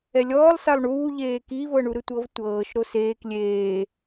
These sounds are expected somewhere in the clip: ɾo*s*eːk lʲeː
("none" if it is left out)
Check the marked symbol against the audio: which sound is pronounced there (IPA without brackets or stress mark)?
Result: s